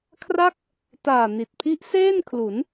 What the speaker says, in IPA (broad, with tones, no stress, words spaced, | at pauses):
kʰra˥˩k̚ | taː˨˩ni˨˩t̚pʰi˦˥ʔ seː˥˩nkʰlu˩˦n